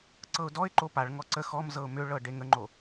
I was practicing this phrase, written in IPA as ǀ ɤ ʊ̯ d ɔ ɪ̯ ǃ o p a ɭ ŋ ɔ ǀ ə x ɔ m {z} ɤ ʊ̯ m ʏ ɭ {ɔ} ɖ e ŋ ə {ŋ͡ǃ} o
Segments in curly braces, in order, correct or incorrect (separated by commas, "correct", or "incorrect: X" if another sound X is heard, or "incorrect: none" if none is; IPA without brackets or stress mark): correct, incorrect: ɤ, correct